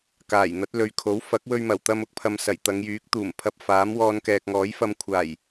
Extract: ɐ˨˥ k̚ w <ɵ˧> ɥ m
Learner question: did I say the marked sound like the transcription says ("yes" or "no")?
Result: yes